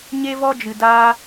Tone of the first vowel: high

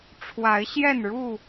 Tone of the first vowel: rising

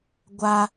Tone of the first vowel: high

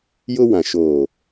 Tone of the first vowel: high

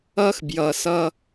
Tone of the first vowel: high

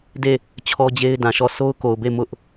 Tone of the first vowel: falling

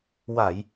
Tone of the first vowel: low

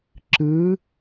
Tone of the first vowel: rising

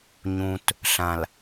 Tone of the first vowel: low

